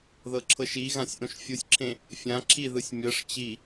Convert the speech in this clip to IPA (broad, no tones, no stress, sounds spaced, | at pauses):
ð ɤ ǁʰ ɤ ʃ i ɣ ã sʲ ʔ õ ʃ fʲ u sʲ ǁʰ ẽ | fʲ ã ǁʰ i ð ɯ sʲ mʲ ɤ ʂ t͡ɕ i